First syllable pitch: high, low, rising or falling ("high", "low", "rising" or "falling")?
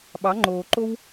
rising